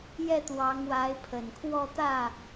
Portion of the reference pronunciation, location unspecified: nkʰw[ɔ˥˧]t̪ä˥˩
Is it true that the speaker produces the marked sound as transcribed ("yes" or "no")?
yes